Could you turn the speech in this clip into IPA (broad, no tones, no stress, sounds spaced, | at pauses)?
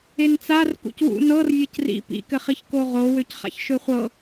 e n t͡s a r k ṵ c w ṵ n ɤ r vʲ ɤ c r ḭ p ḭ k ɘ χ i ç k o ʁ o w ø c χ a̰ ç ʃ ø χʷ ɤ